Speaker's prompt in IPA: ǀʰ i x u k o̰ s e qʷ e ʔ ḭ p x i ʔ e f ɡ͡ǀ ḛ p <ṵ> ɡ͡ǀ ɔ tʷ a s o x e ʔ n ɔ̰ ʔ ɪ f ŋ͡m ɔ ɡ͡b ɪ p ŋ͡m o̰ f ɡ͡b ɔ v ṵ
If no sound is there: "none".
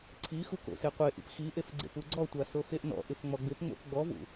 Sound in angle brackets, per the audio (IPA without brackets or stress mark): u